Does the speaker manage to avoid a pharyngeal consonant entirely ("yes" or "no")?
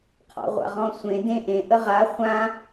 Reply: yes